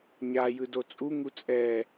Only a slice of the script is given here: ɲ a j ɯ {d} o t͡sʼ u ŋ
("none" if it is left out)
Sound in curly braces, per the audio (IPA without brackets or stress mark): d